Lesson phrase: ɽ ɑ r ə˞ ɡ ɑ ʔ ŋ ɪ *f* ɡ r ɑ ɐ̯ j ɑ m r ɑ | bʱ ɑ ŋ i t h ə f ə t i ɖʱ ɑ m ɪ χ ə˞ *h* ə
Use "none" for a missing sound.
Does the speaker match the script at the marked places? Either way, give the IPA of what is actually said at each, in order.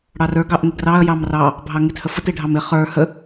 none, h

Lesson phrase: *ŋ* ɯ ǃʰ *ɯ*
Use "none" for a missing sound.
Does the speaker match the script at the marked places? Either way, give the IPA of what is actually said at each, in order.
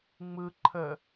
ŋ͡m, ə

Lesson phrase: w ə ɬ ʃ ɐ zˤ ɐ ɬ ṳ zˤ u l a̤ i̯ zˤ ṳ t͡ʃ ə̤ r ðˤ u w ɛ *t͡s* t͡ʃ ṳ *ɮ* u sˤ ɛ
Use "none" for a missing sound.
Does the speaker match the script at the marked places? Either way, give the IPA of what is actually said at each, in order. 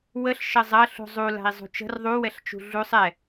ɬ, ɮ

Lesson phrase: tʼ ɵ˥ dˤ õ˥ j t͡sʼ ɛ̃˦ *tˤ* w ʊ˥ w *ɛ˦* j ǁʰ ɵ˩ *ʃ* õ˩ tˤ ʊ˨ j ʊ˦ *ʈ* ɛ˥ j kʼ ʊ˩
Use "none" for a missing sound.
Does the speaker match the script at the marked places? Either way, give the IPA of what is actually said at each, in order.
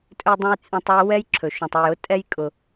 tˤ, ɛ˦, ʃ, tʼ

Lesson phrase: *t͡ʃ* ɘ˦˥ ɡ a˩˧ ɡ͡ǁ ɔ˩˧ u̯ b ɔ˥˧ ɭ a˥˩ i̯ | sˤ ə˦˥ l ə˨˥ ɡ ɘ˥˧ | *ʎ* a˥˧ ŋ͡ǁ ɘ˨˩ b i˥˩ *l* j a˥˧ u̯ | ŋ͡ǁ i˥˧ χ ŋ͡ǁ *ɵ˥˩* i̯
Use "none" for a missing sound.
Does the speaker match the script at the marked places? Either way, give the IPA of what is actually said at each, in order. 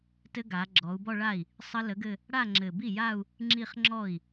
t, ɽ, none, ɔ˥˩

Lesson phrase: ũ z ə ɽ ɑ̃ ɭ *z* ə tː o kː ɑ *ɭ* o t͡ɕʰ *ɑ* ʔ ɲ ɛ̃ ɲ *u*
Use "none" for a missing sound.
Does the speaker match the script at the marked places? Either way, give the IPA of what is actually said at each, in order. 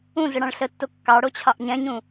ɬ, ɽ, ɑ, ũ

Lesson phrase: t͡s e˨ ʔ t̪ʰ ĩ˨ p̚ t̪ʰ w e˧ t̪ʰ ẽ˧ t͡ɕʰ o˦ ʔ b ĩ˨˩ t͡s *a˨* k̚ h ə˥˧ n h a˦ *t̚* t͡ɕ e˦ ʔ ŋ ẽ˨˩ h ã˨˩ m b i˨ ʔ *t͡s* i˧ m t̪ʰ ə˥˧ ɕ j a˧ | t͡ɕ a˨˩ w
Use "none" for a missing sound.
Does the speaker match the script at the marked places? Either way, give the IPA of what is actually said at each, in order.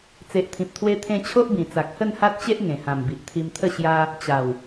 a˨, t̚, t̪ʰ

